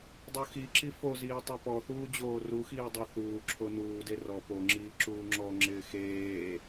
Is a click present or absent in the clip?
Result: present